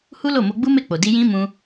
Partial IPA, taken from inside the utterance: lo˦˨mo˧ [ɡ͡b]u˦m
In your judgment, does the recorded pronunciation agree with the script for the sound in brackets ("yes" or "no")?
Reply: yes